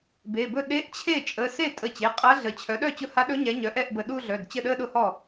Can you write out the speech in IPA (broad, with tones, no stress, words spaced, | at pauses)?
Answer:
be˩˧˩bɵ˥˩ ɗe˧˥ʔt͡ɕʰe˥˩ t͡ʃʼə˩˧˩se˥˩ tʼə˧˩t͡ɕe˩˧˩ qʼa˧˥ɮə˩˥ t͡ɕʰœ˩˥ɗœ˥˩ t͡ɕʊ˥˩ha˧˥ ɗɵ˧˥ɲɛ˩˥ɲœ˩˥ ʔɛ˥˩ʔbə˧˩ɗu˥˧ɮœ˩˧˩d t͡ɕə˥˩ɗə˥˧ɗʊ˥˩hɔ˥˩